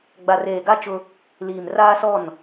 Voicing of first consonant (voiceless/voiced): voiced